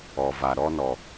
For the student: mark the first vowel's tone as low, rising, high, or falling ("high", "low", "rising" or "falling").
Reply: low